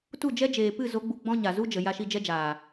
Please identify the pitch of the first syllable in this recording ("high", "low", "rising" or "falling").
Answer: falling